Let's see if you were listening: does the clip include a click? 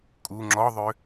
yes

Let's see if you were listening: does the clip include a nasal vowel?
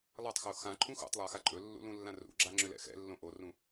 yes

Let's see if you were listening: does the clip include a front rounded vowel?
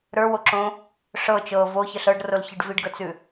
no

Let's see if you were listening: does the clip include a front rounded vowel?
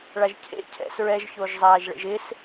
no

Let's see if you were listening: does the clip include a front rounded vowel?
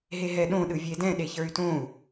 yes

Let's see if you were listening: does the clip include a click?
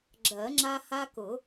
yes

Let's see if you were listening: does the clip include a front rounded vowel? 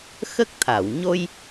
no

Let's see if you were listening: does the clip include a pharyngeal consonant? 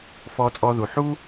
yes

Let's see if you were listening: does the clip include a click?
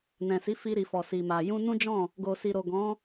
no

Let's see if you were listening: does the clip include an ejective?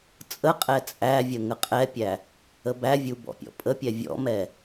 yes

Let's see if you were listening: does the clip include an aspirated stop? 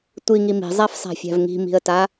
no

